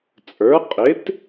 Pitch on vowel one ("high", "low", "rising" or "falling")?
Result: rising